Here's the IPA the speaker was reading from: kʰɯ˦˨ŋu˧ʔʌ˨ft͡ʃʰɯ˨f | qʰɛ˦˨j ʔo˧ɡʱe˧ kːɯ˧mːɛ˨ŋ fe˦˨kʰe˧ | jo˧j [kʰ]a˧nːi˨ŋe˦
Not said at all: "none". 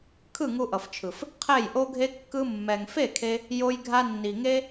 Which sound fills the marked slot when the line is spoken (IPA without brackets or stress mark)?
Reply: ɡʱ